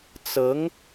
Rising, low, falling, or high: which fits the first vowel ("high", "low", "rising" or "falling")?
rising